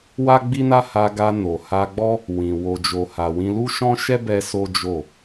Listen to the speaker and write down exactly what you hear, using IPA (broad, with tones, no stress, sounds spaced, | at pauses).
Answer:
w a˦ ɡ͡b i˦ n a˦ h a˧ ɡ a˧ n o˨ h a˧ ɡ͡b ɔ˦ | w ĩ˨ w o˨ d͡ʒ o˨ h a˨ w ĩ˧ l u˦ ʃ ɔ̃˦ ʃ ɛ˦ b ɛ˧ s o˦ d͡ʒ o˦˨